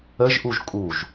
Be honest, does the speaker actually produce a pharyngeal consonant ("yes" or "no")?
no